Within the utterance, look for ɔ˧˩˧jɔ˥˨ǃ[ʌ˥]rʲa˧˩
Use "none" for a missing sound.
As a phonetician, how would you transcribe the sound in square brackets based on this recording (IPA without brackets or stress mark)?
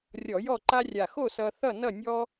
a˥